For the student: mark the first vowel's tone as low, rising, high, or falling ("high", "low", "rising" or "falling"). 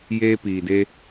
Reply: high